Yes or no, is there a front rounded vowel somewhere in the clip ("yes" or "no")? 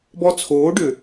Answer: yes